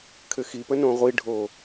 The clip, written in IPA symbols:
kʰ ɘ x i p ə n õ ʁʷ i ɖʱ o

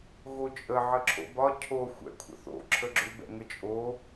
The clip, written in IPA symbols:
ɣ o t͡ʃʼ ə ʕ ə ǁʰ o̰ b ɒ cʰ o xʷ ɛ̰ kʷʰ ə̰ θ o̰ ǁʰ ə ɡ͡ǁ ʏ b ɛ̰ ŋ ə t͡ʃʼ o

